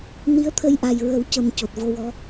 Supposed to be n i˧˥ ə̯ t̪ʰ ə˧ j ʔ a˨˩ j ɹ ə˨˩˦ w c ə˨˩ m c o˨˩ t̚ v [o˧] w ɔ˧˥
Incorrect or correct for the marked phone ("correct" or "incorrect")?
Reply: correct